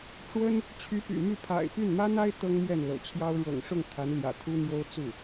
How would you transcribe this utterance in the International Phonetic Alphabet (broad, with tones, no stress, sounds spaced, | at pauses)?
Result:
ʈ͡ʂ w ə˥ n | t͡ɕʰ y˧˥ p y̰˨˩ m y˥˩ pʰ a̰˨˩ ɪ̯ p y˥˩ n m ä˥ n̪ a˥ ɪ̯ t̪ ɤ˥ ŋ m ɥ ɛ˥˩ n l ɤ̰˨˩ t͡ɕʰ j ɑ˥ ʊ̯ ɻ ɤ̰˨˩ ŋ ʂ ʊ˥˩ ŋ kʰ a˧˥ n l j ä̰˨˩ t̪ʰ u˥ n̪ j o˥ ʊ̯ t͡s u˥˩